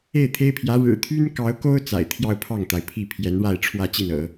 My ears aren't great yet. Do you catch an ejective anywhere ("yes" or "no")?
no